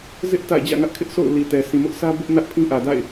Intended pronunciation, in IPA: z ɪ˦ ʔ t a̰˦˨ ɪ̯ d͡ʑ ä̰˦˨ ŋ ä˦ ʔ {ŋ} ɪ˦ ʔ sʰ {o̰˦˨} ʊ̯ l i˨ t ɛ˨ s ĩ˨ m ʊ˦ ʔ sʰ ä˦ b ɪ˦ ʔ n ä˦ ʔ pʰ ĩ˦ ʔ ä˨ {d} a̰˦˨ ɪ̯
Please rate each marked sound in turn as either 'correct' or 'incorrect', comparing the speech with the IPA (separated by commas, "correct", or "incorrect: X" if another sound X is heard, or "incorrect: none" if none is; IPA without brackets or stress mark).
incorrect: kʰ, correct, correct